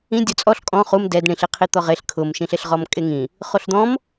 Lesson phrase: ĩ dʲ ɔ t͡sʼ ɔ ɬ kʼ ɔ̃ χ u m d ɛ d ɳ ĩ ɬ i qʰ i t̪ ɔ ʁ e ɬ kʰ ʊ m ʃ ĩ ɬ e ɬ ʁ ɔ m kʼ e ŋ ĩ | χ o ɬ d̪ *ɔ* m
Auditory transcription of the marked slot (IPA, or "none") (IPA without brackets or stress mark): ɔ̃